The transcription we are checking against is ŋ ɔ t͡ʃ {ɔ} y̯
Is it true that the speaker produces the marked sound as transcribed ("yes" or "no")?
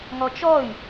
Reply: yes